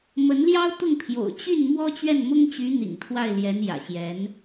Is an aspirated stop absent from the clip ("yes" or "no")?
no